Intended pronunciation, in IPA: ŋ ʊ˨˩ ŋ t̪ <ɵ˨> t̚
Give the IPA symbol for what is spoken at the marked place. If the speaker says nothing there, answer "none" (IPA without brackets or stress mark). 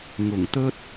ɵ˥